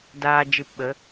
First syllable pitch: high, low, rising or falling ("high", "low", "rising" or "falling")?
low